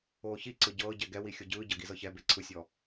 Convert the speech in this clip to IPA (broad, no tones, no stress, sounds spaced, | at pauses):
oː ç i ǀ ɯ ɟ ɤː ɟ ɛ ɡ ɛ w i xʲ o ɟ ɯː ɟ ɤ ɡ i z ɤ ç ɛ b e ǀʰ ɯ sʲ ɔ